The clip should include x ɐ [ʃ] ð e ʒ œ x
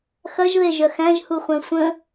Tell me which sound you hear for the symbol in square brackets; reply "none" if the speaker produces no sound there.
ʒ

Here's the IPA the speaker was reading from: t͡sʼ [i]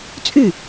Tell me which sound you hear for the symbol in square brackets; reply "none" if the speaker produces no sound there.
y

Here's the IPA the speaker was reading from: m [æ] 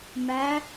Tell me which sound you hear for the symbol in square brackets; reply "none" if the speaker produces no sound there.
æ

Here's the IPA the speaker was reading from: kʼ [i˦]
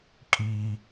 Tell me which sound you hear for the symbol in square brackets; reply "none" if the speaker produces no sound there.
i˦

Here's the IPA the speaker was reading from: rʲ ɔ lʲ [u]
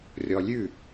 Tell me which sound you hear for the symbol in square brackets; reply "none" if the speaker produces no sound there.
ʉ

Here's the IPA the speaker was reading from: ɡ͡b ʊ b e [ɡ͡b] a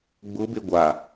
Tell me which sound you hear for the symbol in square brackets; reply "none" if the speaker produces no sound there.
ɡʷ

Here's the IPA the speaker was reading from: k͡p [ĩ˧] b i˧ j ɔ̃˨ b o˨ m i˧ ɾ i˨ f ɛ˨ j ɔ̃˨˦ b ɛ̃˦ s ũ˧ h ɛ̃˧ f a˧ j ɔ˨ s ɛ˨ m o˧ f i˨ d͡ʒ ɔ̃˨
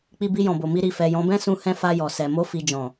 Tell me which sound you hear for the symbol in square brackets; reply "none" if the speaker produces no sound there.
i˧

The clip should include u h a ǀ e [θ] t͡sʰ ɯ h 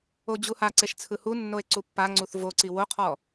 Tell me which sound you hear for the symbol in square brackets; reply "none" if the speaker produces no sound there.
ʃ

